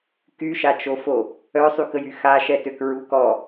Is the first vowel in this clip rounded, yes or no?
yes